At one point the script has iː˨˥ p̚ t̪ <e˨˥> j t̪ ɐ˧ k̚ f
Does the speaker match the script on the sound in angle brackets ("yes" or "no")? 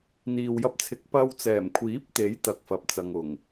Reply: yes